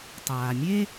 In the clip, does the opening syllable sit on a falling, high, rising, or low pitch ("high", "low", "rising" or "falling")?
low